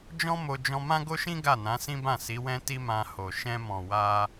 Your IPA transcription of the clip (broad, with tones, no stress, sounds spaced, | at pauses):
d͡ʒ ɔ̃˦ m o˧ d͡ʒ ɔ̃˧ m ã˦ ɡ o˦ ʃ ĩ˦ ɡ a˦˨ n ã˨˦ s ĩ˦ b ã˦˨ s i˨˦ w ɛ̃˦ t i˦ m ã˧ h o˨ ʃ ɛ̃˧ m ɔ̃˨ w a˧